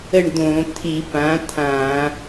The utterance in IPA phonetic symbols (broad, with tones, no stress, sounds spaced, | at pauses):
ə˦˨ ɳ d̪ õ˧˩˧ t̪ʰ i˧˩˧ p ã˩˥ t̪ʰ ã˧˩˧